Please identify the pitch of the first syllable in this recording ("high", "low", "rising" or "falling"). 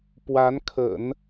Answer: rising